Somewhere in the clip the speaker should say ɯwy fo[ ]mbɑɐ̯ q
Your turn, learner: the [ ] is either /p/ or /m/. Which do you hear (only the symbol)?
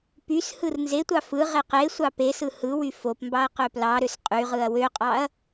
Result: p